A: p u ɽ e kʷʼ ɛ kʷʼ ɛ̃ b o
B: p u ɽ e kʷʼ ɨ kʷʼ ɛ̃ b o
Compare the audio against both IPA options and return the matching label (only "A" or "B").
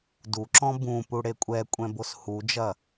A